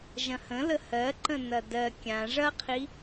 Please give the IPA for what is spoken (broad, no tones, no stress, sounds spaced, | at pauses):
ʒ ɐ̃ h ə̃ l ə h ɜ ǃ ə̃ n ɐ d ɜ kʲ ã ʐ ɐ qʰ i